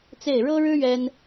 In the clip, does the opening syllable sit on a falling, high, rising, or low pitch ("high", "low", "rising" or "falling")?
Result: falling